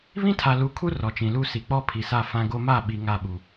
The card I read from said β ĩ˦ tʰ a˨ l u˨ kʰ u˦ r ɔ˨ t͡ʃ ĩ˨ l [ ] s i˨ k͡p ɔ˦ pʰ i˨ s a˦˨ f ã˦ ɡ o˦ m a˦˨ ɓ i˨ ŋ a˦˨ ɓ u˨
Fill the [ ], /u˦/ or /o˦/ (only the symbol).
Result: u˦